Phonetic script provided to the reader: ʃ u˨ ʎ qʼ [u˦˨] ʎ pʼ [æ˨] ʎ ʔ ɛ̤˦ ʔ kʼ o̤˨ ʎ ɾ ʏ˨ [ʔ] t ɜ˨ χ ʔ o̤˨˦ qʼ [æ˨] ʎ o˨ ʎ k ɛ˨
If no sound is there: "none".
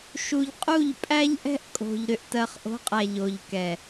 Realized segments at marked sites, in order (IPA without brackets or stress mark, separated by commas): u˦˨, æ˦, ʔ, æ˨